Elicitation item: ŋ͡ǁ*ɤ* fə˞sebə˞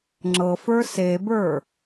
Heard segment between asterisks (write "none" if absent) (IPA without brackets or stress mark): ɤ